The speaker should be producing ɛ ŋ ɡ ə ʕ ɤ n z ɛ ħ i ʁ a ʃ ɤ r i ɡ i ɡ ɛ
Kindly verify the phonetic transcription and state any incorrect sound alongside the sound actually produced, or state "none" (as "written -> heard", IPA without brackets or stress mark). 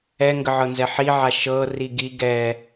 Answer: ʁ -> ʕ